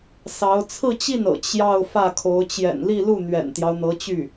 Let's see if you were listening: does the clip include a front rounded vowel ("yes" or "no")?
yes